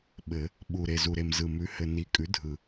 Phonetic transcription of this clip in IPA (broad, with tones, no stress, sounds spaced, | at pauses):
ɓ ɘ˨˩˦ | ɓ u˨˩ ɾ e˨˩ z u˨˩ ɾ e˨˩ m z ɯ˨˩ m ʉ˩˥ h ɘ˨˩ n i˩˥ kʼ ʉ˩˥ dʱ ɯ˨˩